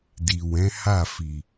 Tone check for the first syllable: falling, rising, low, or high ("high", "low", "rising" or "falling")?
low